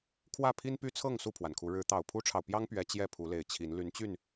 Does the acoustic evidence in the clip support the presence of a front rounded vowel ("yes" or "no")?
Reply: yes